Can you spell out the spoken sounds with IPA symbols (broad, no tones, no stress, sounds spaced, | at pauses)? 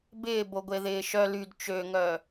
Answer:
b ɪː b o ɡʷ e ð ɪː ʃ œ l y d t͡ʃ ø ŋ œ